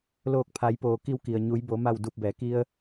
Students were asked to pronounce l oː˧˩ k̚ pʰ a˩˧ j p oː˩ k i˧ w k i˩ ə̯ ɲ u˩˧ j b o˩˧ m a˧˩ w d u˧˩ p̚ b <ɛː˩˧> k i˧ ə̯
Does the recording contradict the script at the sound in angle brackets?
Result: no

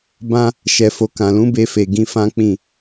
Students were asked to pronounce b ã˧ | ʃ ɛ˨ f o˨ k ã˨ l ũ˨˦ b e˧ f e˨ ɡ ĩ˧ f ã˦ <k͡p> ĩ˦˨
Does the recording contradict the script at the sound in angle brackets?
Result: no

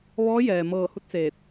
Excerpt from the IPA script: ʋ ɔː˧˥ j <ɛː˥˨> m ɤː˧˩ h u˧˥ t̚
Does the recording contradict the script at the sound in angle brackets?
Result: yes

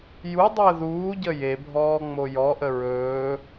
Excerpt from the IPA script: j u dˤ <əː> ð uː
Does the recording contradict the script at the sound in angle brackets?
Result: no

